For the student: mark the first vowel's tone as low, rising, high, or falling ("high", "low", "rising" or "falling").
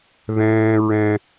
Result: high